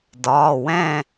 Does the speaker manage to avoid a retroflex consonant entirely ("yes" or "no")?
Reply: yes